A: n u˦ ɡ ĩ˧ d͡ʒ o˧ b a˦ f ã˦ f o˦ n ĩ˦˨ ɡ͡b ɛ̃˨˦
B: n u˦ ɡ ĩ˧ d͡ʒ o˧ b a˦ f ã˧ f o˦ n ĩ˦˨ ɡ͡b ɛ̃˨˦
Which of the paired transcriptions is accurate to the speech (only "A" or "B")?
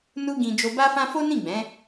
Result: A